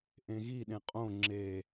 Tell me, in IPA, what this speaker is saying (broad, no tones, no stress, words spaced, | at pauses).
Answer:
ʔẽɣiɗẽ qʼõ ŋ͡ǁe